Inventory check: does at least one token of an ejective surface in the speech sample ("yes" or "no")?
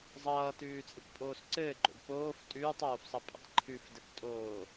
yes